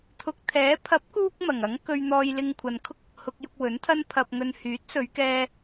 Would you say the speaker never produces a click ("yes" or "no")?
yes